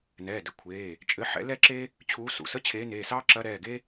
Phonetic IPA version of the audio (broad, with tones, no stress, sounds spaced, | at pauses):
n ɛː˩˧˩ d ɘ˩˧˩ kʷʰ eː˩˧˩ | t͡ʃʼ ɘ˧˥ ħ ɛ̰˧˥ l ɛ˥ ǁ e˥ | t͡ɕʰ uː˧˥ s ṵ˩˧˩ s ə˥ t͡ɕʰ eː˧˥ n eː˩˧˩ s ɑː˥ ǁ ɐ˧˥ ɾ ɛː˩˧˩ ɡ e˥